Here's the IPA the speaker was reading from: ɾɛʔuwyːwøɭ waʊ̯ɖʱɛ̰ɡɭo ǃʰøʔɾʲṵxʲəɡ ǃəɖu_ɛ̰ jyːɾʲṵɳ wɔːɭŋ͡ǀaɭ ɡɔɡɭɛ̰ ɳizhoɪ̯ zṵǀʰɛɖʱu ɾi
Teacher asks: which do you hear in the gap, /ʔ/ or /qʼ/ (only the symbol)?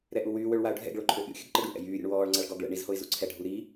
ʔ